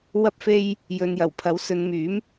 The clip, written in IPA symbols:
w ɐ˧ p̚ f e˧ j | j ɵ˨ n j ɐ˨˩ w pʰ ɐ˨˥ w s ɵ˨˧ n m yː˨˥ m

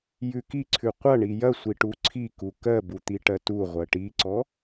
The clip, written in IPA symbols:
j ʉ k i ǀʰ ʉ qʷ ɐ ɳ i j ɐ sʷ i ʈ u ǀʰ i k u k ɜ b u t̪ i ʈ ɜ t u ʁʷ ɜ ʈ i ǀ ɔ

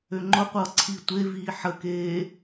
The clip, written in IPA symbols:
ø ŋ͡ǃ ʊ qʷ ʌː ǀʰ i tʷ e v iː ħ ə k eː

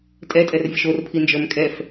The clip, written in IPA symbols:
tʼ ɛ tʼ ɛ r vʲ ə ʃ o r pʰ i n d͡ʒ ə˞ m kʼ ɛ f

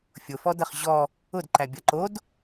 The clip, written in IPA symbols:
fʲ ʊ f ɔ d ɐ χ ʑ ɔ | ʊ d ǃ æ bʲ ɐ ǃ o d

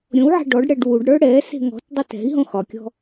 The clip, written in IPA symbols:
ɾʲ õ w ʕ a̤ ɖ ɔ ɖ ɽ ɛ ɖ w u ɖ ɽ ə˞ ɽ ɛ s e̤ ŋ ɔ̤ t dˤ e t ɛ̤ i̯ ɦ õ x ɒ kʲ ɔ̤

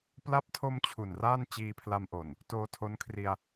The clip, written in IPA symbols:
p l a˦˥ p̚ tʰ o˧ m t͡ɕʰ u˨˩ n r aː˥˩ n t͡ɕ iː˧ pʰ l a˧ m ʔ o˨˩ n | t oː˧ tʰ o˦˥ n kʰ r i˧ a̯

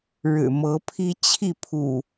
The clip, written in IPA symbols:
ɻ ɻ̩˨˩ m ɤ˨˦ pʰ i˦ t͡ɕʰ i˥˨ pʰ ṵ˨˩

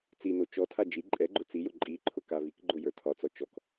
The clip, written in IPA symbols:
t͡s i n o t͡ʃ ɔ tʰ a d͡ʒ i ǃʼ ɛ ɡ͡ǃ ʊ t͡s i j ʊ ǃʼ i ǃʰ ʊ k a v i k ɡ͡ǃ ʊ j ə˞ tʰ ɒ t͡s ɔ t͡ʃ ɔ k

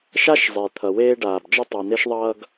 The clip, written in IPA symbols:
ʃ a˥ ʃ zˤ e˩ t̪ʰ ʌ˩ w eː˦ ɖ aː˩ b d͡ʒ ʌ˦ tˤ a˩ n̪ e˦ ʃ ðˤ ʌː˦ ɡ

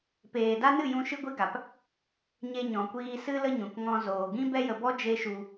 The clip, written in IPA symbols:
p eː˨ d a˦ n ɨ˦˨ j ũ˧ ʃ ɨ˦ ɡʷ i˦ ɡ a˨ p | ɲ e˧ ɲ ɔ̃˨ kʷ iː˧ s ɨ˦ l ə˦ ɲ ũ˨ k ŋ ɔ̃˧ z oː˨ ɡ ĩ˦ b ɛ˦ j ə˧ b ɔ˦ d͡ʒ e˦ ʃ u˧

